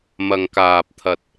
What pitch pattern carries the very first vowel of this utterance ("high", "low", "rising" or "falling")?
low